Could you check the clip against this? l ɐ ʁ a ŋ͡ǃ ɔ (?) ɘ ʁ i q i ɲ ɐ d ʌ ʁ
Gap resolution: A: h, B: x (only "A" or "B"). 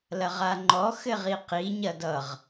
B